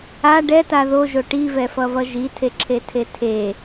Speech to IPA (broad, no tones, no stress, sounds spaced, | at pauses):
a ɖ ɛ t a ð o ʒ o ʈ i v ɛ f ʌ v ʌ ʒ i tʰ e ǁʰ e tʰ e tʰ e